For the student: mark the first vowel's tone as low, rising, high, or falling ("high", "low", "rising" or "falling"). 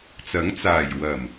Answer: rising